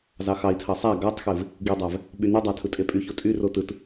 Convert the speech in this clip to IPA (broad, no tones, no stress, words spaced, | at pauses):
zɑxɑi̯tʰɑ sˤæ ɡɑtˤxev | ɡidˤæv | ɓynydˤɑ tʰɯtʼepʼyço tʼyro tɯt